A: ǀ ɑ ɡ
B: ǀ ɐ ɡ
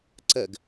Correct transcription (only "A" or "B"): B